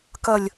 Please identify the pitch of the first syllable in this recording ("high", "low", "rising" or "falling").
low